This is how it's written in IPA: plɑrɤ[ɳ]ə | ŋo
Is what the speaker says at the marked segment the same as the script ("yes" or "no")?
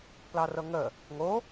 no